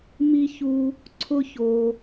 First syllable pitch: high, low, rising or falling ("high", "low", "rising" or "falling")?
high